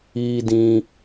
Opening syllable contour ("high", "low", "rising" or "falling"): low